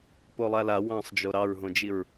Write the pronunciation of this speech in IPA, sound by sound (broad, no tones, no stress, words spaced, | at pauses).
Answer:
polˠala wɑ̃sˤd͡ʒo ɾɑɹɦõd͡ʒiɹ